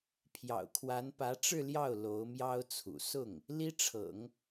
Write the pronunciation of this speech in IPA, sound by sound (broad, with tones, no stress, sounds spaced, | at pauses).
pʰ j ɑ̰˨˩ ʊ̯ kʰ w a˧˥ n p ä˧˥ ʈ͡ʂ ɻ̩˥˧ l j ɑ˥˩ ʊ̯ l o˧˥ ʊ̯ m j ɑ˥ ʊ̯ t͡sʰ ṵ˨˩ s ʊ˥˩ ŋ | l i˥ ʈ͡ʂʰ ɤ̰˨˩˦ ŋ